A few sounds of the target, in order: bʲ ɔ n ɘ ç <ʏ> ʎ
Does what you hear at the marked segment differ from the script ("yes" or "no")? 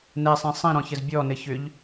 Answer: no